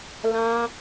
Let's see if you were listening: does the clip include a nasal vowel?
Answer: yes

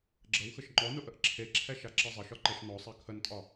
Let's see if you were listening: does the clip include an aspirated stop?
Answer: yes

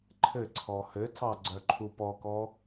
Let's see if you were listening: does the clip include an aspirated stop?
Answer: yes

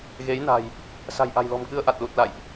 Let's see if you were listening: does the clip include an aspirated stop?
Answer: no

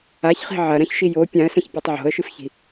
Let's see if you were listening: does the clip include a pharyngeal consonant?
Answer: yes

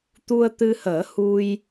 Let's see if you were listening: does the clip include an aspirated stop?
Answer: no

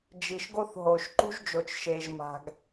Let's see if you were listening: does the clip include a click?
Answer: yes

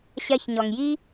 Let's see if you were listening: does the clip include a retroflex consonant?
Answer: no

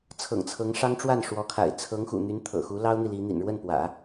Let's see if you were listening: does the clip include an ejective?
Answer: no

